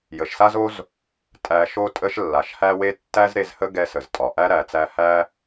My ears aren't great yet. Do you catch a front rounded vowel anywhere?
no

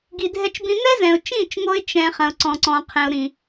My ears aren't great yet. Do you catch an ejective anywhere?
no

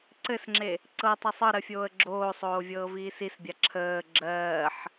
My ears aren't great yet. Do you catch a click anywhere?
yes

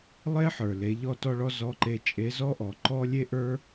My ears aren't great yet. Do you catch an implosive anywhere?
no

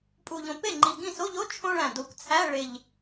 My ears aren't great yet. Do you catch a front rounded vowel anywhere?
no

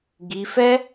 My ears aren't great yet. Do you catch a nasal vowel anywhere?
no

